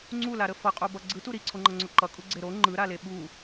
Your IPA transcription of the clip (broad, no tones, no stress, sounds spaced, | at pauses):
ŋ͡ǀ u l a ɾ ə f ʌ qʼ o b ʌ ɡ͡ǀ ɯ t u ɾ i ǀʰ o ŋ͡ǃ ʌ ŋ͡ǀ o ǃ ʌ kʼ u ɡ͡ǀ e ɾ o ŋ͡ǃ ɯ ɾ a l e ɓ u